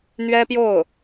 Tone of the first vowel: high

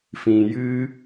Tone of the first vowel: low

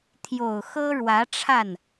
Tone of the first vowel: low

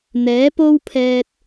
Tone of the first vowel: rising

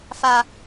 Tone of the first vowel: low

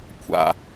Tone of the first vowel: low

